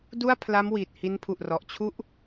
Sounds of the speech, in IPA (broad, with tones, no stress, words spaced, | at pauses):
du˥˩a̯pʰla˦˥m wiː˨˩t̚hi˦˥npʰu˨˩ʔ rɔ˨˩ʔt͡ɕʰu˥˩ʔ